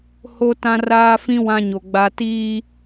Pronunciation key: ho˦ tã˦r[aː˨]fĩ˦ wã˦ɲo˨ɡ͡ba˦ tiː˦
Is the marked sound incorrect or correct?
incorrect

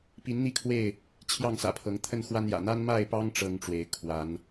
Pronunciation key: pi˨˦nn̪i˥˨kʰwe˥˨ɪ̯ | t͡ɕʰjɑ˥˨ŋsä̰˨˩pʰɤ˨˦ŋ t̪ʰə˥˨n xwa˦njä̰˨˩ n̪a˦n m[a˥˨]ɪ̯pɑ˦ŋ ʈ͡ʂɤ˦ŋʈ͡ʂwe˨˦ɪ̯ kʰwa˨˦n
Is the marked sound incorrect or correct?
correct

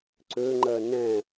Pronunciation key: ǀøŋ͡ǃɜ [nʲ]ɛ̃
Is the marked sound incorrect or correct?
incorrect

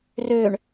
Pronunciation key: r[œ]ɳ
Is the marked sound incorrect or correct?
incorrect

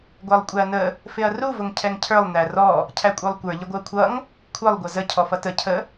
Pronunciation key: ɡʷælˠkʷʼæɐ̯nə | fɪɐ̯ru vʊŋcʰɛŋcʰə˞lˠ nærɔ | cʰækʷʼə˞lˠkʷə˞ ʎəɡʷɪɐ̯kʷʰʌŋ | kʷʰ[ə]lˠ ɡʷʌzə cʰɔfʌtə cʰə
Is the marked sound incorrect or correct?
correct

